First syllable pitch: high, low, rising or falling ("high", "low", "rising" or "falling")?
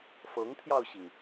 rising